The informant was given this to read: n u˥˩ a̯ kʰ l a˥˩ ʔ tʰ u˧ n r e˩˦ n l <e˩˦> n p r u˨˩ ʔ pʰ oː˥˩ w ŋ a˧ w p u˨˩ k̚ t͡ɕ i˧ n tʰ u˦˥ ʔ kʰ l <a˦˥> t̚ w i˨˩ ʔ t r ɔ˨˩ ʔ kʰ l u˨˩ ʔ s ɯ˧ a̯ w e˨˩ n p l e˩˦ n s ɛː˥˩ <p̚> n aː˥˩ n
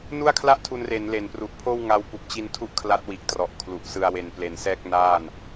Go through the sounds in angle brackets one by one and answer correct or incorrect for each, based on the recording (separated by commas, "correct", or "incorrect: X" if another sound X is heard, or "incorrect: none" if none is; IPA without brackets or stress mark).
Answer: correct, correct, incorrect: k̚